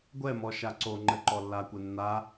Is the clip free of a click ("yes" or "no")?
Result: no